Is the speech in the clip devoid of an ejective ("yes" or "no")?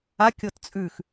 no